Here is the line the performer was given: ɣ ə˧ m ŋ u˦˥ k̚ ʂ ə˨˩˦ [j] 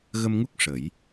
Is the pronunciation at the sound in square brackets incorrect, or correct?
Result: correct